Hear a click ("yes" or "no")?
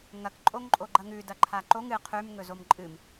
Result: yes